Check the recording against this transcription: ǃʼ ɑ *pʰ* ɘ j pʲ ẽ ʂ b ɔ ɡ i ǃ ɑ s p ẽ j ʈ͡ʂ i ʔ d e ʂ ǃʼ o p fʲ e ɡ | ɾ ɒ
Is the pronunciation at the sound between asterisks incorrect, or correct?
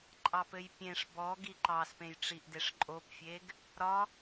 incorrect